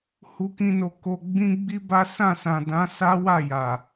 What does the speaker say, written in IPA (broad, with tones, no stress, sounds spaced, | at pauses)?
h u˦ k ĩ˦ n o˧ k o˧ ɡ͡b ĩ˦ ɡ͡b i˦ b a˦ s ã˦˨ s ã˨ d ã˨˦ s a˦ w a˦˨ j a˨